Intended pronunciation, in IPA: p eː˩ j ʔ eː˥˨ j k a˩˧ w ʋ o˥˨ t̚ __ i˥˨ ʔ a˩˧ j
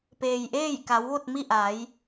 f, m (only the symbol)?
m